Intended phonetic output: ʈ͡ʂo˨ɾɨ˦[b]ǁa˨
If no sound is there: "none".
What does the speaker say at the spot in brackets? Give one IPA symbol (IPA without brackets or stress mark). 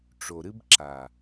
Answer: b